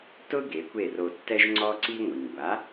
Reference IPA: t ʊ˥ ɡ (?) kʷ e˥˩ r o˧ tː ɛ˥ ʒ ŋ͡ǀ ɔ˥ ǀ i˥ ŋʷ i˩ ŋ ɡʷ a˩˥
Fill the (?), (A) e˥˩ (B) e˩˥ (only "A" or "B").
B